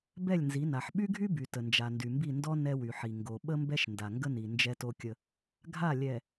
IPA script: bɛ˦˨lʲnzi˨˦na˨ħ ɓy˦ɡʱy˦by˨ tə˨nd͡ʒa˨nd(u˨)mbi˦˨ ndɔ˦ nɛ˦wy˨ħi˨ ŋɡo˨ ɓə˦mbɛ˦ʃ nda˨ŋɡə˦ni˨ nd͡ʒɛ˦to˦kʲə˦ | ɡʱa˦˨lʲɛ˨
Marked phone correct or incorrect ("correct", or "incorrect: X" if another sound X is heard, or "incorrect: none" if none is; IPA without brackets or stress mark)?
incorrect: y˨